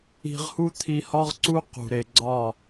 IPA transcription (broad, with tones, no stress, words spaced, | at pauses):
i̤˧ʁhu˦ t̪ʰi˧hɒ˦ʁǀu˦ qṳ˨ɾe˨ ɡ͡ǀɒ˦˨